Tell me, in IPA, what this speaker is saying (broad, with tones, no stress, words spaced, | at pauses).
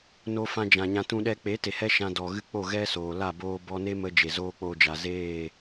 no˧fã˧d͡ʒã˨ ɲã˧tũ˦ɗɛ˦ k͡pe˨˦te˨hɛ˧ ʃã˧dɔ˨ɣɨ˦ k͡po˦˨ɣɛ˦ soː˨la˦˨boː˦ bɔ˧ne˦mə˧ d͡ʒe˨zoː˦k͡poː˧d͡ʒa˨ zeː˦˨